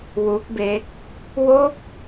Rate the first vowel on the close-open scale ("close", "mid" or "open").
close